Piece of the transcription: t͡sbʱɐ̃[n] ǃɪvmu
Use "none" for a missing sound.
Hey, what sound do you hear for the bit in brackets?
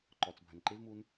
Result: n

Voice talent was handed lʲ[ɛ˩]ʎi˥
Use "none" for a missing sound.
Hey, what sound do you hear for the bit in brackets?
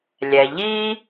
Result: ɛ˩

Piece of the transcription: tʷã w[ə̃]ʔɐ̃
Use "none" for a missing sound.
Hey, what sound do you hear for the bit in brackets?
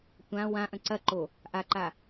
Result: ã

